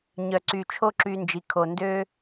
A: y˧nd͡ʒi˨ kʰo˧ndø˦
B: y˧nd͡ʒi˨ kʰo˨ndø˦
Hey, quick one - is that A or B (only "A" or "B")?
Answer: B